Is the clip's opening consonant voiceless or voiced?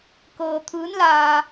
voiceless